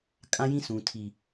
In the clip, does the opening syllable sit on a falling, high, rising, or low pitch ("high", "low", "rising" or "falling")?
high